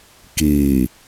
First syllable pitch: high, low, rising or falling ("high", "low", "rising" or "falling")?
low